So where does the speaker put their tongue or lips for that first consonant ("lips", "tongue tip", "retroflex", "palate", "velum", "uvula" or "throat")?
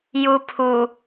palate